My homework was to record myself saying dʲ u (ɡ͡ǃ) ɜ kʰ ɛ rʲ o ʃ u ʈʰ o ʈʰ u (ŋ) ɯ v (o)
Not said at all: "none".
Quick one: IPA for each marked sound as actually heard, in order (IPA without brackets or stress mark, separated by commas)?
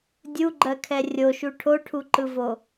ɡ͡ǃ, ǃ, o